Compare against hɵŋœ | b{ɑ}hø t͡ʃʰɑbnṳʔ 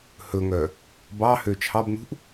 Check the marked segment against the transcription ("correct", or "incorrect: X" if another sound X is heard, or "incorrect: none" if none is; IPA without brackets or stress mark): correct